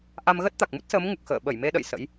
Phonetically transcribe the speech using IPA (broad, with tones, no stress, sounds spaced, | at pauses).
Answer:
ʔ a˧ m ɣ ə˦˥ t̚ t̪ a˨˩ k̚ m u˦˥ t̚ s əː˨˦ m ŋ u˨˩ k̚ x ə̰ː˧˨ ɓ ə˧˩ j m e˧ ɗ ə̰˧˨ j s ə̰˧˥ j